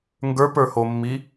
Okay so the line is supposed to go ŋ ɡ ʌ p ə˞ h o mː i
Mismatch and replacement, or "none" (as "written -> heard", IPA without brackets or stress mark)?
ʌ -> ə˞